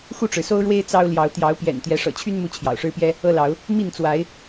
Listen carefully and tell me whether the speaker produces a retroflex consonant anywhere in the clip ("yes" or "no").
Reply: yes